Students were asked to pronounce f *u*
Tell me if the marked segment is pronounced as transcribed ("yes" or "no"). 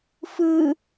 no